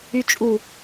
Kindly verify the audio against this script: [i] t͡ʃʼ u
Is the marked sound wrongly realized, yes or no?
yes